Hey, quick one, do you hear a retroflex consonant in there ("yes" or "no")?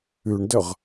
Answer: yes